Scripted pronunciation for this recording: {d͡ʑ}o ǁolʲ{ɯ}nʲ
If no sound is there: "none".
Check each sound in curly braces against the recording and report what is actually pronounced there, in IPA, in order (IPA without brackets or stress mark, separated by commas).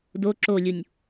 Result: d, u